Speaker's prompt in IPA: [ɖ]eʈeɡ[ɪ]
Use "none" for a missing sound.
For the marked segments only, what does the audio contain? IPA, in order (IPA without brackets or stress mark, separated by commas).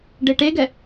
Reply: ɖ, ɛ